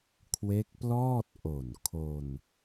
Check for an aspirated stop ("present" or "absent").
present